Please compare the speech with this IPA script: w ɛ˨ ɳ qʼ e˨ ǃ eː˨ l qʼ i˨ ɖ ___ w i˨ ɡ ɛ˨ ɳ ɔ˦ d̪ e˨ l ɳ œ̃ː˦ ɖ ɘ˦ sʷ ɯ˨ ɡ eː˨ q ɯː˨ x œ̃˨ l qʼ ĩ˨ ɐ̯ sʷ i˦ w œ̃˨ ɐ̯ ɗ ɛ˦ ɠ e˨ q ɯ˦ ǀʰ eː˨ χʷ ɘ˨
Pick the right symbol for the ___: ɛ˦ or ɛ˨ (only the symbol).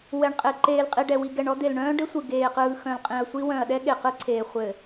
ɛ˨